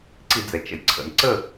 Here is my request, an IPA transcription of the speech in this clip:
ǀ i˧˩˧ d͡z ɛ˩ t͡ʃ ə̰˩ j ǀʰ ə̰˩ n ǀ ə˥˨

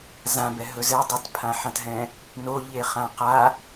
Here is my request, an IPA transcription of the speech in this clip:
z ã b ɛ ɦ ɵ z ɛ dˤ ɛ t pʰ ã ħ ã t ɦ ɛ̃ | n o ʎ e χ ã q a

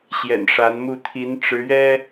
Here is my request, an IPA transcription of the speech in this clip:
ɕ j ɛ̰˨˩ n ʂ a˨˦ n m u˥˨ t̪ʰ i˨˦ n ʈ͡ʂ ɻ̩˨˦ ɥ ɛ˦

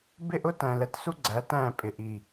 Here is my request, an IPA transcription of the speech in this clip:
b ɪ˦˨ ʔ ʊ˦ t æ̃˨ l ɛ˨ t s u˦ ɡ͡ǀ æ˨˦ t æ̃˦˨ pʼ ɪ˨ ʔ i˨

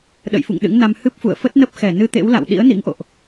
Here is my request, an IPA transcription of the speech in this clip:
ɗ ə̰˧˨ j f ṵ˧˨ ŋ ɗ ɨ̰˧˥ ŋ n a˧ m h ɨ˦˥ p̚ f ṵ˧˨ ə̯ f ə˦˥ t̚ n ə˦˥ p̚ x ɛ˧˩ n ɨ˧ t̪ ḛ˧˥ w l a̰˧˨ w ɗ ḭ˧˥ ə̯ n ḭ˧˥ ŋ ʔ o̰˧˨ ʔ

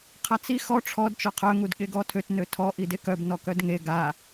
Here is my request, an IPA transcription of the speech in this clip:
qʰ a t͡s i x ɔ ʈ͡ʂʰ ɔ d t͡ʃ ɔ qʰ œ ŋ u d ɠ e ɡ ɔ tʰ ø t n ø tʰ ɔ ʔ i d e k œ b n ɔ k œ d ŋ e ɡ a

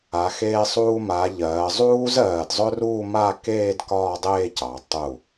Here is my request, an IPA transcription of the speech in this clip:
a˩˧ x eː˧ sˤ uː˧ m a˩˧ ʎ ɜː˩˧ zˤ uː˥ z ɜː˧˩ d zˤ ɵ˥ r uː˥˧ m a˥˧ k eː˥˧ d k ɒː˥˧ dˤ eː˥˧ c ɑ˩˧ tˤ u˧˩

